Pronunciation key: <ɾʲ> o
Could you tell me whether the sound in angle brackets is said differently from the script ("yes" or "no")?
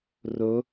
yes